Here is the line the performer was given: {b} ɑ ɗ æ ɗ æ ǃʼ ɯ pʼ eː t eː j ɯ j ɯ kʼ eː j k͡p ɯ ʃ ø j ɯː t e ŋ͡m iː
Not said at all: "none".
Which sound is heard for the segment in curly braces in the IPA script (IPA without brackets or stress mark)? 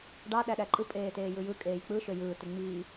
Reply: ɖ